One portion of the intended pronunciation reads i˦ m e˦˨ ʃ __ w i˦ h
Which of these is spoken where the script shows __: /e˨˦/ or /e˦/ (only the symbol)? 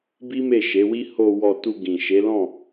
e˨˦